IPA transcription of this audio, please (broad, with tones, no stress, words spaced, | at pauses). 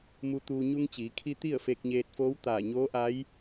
mu˧t̪uː˧ ɲu˧ŋt͡ɕiː˩˧kʰi˧ t̪i˥˨ə̯fe˧k̚ɲeː˧t̚foː˧˥w t̪aː˧˩ɲoː˧˥ʔa˧˥j